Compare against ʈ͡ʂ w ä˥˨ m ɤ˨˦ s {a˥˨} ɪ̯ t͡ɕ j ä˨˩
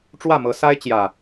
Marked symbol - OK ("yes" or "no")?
no